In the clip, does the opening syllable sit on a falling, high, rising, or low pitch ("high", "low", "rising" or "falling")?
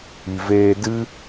low